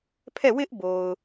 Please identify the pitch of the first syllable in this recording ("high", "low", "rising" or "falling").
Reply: falling